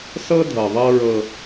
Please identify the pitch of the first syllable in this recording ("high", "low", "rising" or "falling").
high